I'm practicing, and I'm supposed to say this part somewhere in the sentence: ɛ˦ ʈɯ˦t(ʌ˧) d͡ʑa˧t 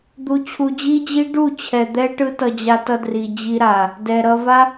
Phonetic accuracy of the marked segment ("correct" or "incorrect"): correct